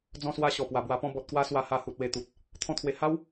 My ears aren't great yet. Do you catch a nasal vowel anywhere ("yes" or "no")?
yes